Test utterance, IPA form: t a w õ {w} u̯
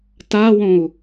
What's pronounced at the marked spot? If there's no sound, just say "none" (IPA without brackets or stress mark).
none